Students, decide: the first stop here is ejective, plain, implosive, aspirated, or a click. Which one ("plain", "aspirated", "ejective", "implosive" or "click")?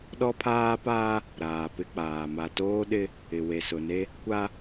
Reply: implosive